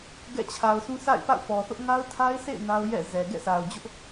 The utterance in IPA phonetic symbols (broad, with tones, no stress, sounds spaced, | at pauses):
ɡ ɛ̰˦˨ t͡ɕʰ a˨ ʊ̯ sʰ ũ˦ s a̰˦˨ ɪ̯ p a̰˦˨ ʊ̯ p ɔ˨ θ ʊ˦ ʔ ŋ a˦ ʊ̯ tʰ a˦ ɪ̯ sʰ ḛ˦˨ ɪ̯ n a˦ ʊ̯ j ɛ̰˦˨ z ɛ˨ ɡ ɛ̰˦˨ s a˨ ʊ̯ d͡ʑ ʊ˦ ʔ